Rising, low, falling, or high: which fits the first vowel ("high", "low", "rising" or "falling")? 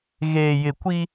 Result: low